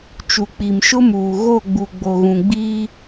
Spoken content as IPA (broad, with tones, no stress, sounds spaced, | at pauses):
t͡ʃ u˨ k͡p i˨ m ʃ ʊ˦ m uː˨ ɣ o˦˨ ɡ͡b u˨ ɡ͡b o˨ ɣ ũ˨ ɡ͡b iː˦